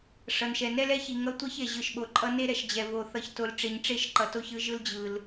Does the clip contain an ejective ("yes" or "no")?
yes